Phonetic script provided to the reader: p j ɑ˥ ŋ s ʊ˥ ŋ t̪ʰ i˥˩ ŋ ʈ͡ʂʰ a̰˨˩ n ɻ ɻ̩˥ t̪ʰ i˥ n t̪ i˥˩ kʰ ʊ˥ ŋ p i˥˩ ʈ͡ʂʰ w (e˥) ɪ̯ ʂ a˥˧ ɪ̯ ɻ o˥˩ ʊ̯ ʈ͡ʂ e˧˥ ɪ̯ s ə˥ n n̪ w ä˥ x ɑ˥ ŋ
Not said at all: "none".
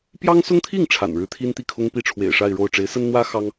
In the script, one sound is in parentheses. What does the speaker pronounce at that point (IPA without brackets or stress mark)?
ḛ˨˩